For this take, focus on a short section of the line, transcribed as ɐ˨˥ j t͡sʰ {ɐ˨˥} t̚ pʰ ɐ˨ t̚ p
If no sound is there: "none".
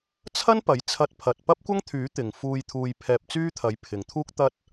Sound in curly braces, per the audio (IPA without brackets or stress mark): ɐ˧